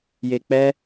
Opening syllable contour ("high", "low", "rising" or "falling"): low